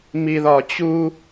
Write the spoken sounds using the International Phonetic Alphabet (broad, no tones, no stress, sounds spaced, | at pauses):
m i ð ɒ t͡ɕ u